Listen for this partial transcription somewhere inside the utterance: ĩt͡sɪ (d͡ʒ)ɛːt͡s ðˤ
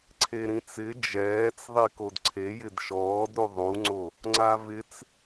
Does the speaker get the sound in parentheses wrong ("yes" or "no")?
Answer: no